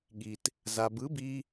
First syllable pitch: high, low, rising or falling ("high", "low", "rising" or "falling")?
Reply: low